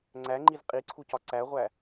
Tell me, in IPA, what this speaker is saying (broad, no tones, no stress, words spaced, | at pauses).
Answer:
ŋ͡ǀæŋ͡ǃiz qʼiǀʰucɒ ǀæʁʷæ